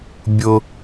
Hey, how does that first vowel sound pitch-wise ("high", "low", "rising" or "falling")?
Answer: low